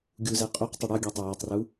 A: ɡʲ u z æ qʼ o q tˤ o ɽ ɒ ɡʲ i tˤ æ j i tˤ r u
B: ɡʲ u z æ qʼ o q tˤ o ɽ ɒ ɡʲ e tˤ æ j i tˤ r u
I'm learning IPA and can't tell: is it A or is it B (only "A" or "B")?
B